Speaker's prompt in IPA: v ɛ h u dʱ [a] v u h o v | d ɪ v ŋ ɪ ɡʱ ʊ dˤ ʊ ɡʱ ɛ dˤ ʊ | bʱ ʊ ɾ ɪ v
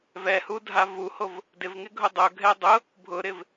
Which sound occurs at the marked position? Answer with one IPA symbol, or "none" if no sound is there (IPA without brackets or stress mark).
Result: a